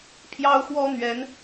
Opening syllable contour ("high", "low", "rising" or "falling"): high